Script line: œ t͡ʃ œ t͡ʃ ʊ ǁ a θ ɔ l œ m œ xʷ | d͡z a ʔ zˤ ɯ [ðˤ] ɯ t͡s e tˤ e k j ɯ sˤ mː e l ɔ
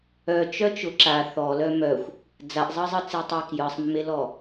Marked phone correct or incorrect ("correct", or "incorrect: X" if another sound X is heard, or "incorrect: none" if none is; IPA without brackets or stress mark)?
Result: incorrect: zˤ